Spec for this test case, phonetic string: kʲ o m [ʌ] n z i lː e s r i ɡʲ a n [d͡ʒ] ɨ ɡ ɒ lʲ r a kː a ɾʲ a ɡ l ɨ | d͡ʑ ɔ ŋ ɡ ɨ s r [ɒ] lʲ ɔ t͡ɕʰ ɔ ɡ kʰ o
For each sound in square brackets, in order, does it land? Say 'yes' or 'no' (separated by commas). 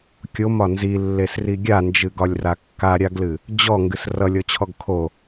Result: no, yes, no